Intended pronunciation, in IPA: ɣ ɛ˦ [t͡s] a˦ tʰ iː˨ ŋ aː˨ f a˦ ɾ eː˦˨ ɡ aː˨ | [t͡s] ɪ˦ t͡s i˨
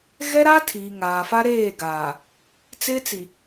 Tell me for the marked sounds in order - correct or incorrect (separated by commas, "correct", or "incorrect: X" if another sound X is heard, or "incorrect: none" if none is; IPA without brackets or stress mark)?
incorrect: ɾ, correct